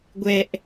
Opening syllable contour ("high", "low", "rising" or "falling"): low